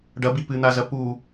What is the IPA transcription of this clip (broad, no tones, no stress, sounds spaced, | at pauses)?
ɖ ɐ b i p ɨ n̪ a z ɐ p u